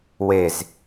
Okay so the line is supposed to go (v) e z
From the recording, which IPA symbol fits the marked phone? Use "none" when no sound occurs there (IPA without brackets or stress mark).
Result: w